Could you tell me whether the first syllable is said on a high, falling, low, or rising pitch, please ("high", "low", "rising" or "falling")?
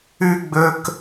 high